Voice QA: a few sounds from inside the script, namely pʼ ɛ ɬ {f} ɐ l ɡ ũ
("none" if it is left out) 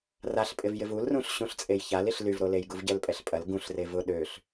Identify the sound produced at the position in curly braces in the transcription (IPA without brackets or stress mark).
pʼ